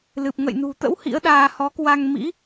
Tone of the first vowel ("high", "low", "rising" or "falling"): low